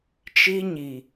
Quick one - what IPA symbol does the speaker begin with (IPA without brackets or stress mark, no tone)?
t͡ʃ